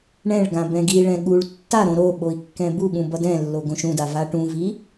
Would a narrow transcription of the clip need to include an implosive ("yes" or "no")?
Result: yes